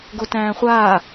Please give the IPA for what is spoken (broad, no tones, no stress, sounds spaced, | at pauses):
ɡ o t æ̃ː χʷ aː